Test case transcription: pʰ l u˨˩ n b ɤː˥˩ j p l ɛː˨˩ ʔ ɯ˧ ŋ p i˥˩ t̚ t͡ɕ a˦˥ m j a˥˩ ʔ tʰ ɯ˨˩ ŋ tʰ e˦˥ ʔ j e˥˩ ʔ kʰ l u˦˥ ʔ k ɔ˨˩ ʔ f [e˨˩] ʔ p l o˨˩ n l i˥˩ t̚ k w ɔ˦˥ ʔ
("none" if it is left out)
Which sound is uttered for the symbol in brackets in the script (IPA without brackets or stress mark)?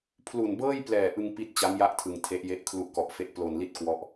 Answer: e˦˥